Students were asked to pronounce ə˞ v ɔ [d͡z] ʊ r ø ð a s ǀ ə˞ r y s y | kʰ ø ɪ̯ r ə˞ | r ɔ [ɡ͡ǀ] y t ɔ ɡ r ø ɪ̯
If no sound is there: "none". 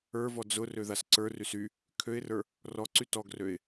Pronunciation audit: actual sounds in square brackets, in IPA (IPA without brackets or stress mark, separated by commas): d͡z, ǀ